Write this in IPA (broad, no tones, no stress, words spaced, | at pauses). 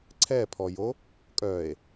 ǀʰɛpʰɔjo | kʼœe̯